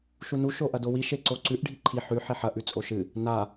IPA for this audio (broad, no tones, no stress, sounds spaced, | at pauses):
ʃ u n u ʃ o ʔ ɐ d o w i ʃ e ǀ o ǀ ʉ ʔ ɖʱ i ǃʰ i ħ ʉ ħ e ħ ɐ ʔ ʉ t͡sʼ o ʃ ɨ | n a